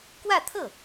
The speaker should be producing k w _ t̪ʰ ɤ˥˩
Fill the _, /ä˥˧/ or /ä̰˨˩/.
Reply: ä˥˧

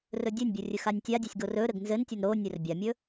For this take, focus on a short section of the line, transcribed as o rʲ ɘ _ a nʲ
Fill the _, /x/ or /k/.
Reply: x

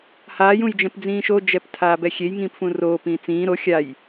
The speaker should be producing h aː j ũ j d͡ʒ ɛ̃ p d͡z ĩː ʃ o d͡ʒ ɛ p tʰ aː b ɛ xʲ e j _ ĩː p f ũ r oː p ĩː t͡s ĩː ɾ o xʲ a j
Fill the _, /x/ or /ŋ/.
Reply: ŋ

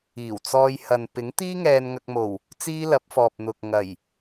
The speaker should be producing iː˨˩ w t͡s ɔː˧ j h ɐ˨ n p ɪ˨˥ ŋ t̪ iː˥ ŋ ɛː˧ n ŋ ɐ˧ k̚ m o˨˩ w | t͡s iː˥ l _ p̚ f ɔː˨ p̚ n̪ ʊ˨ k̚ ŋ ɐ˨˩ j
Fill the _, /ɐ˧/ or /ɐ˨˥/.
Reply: ɐ˨˥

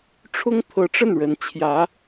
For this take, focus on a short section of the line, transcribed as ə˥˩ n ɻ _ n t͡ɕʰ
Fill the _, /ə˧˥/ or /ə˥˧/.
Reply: ə˧˥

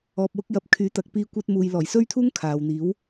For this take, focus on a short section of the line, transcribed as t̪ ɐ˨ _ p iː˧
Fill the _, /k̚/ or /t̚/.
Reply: k̚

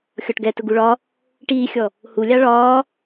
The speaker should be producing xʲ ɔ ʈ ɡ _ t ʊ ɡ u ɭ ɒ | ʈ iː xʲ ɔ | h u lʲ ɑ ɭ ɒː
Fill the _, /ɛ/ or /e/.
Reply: ɛ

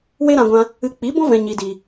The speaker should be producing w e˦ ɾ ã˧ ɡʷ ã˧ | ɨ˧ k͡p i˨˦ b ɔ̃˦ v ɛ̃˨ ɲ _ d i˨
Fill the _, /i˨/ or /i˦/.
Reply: i˨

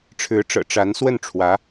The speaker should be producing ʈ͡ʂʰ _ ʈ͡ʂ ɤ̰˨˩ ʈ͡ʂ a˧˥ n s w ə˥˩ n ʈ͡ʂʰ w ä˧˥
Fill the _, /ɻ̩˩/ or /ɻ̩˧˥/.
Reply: ɻ̩˧˥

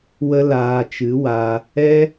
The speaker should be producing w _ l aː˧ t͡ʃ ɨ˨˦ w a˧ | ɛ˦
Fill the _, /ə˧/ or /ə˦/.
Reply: ə˦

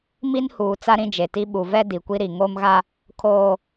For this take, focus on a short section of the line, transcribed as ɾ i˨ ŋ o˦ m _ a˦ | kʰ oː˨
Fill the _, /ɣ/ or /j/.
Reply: ɣ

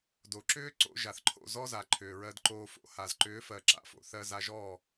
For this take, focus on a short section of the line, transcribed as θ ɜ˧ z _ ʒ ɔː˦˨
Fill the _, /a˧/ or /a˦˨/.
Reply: a˧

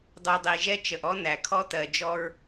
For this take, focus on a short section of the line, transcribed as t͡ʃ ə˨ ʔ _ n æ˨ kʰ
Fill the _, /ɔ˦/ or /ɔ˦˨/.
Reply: ɔ˦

